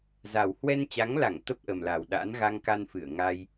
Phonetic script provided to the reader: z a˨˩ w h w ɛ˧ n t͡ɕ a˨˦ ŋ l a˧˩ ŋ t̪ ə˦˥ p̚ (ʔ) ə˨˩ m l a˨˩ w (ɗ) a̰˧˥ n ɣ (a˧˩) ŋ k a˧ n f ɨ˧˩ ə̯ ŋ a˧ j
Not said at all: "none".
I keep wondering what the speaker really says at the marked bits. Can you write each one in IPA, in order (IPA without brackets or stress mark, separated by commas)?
ʔ, ɗ, a˧